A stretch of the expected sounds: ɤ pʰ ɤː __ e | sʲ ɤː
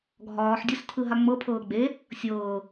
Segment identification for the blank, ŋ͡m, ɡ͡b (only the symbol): ɡ͡b